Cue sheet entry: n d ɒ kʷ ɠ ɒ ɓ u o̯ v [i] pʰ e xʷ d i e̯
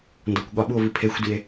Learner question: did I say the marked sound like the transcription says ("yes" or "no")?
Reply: yes